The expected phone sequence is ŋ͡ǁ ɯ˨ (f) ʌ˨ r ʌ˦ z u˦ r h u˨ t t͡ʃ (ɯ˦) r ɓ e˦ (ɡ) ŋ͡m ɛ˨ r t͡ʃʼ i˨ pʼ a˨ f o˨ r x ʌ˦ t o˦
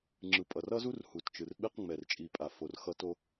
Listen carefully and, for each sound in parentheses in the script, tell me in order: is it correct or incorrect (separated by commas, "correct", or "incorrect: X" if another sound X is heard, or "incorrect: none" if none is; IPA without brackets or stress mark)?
incorrect: pʼ, incorrect: ɯ˨, incorrect: q